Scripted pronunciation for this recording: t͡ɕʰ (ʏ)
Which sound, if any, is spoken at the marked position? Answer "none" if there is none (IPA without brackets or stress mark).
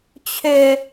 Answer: ʏ